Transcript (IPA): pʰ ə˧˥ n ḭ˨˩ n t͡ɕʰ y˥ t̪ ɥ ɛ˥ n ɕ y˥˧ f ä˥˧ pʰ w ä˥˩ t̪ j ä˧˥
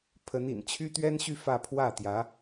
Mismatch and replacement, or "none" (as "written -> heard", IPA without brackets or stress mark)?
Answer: none